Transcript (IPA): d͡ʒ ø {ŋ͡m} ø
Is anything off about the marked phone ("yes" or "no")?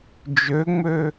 no